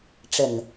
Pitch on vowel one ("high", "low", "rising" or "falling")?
low